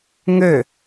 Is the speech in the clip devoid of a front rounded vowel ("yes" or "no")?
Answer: no